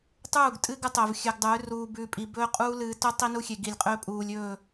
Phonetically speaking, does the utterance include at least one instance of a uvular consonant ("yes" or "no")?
yes